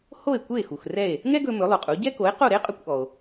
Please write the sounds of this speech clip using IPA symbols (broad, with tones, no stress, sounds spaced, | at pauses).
h o˥˩ e̯ kʷ e˥˩ x u˩ x r ɛ˥˩ e̯ | ŋ ɛ˥ ɡ ɵ˧ m ɵ˩˥ lˠ ʉ˩ qʼ u˩˥ ɟ ɛ˥ k o˩˥ e̯ q o˥˩ ɾ e˥ qʼ ɵ˧ kʷ ʔ ɔ˩ o̯